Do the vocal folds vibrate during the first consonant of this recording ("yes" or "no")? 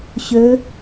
no